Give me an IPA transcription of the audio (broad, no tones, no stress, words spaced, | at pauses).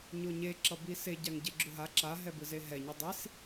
ɲoɲe ǁʌbise ɟaŋɟeɡ͡ǁuɦa ǁa ɦɛbɯzeɦɛ ɲidˤis